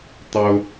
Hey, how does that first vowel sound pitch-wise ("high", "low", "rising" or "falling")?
high